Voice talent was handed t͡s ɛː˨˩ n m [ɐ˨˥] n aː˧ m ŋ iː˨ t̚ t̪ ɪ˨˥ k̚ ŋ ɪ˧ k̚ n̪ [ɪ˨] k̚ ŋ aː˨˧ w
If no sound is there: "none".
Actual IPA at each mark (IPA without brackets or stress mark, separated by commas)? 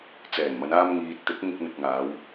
ɐ˨˧, ɪ˨